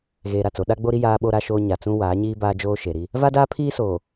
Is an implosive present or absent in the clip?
present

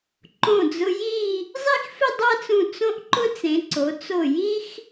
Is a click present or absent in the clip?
present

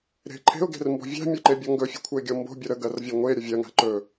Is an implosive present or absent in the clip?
absent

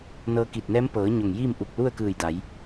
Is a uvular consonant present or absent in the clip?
absent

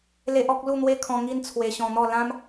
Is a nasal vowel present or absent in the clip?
present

